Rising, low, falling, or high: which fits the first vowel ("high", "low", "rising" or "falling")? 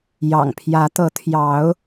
low